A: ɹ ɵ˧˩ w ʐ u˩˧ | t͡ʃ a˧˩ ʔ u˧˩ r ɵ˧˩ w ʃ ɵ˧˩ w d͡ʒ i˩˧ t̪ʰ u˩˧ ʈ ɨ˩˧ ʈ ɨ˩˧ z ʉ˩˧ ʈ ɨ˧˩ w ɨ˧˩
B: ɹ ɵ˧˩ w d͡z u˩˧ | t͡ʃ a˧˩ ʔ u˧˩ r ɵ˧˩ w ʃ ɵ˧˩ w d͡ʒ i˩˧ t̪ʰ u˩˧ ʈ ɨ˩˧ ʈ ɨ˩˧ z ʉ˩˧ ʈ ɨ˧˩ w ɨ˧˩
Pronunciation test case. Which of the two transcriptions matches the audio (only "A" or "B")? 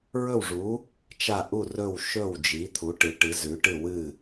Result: A